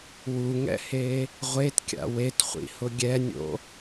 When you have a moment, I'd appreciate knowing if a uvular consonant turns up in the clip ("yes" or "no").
yes